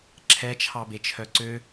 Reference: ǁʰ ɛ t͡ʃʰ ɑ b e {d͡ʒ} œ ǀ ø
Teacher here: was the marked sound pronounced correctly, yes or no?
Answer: no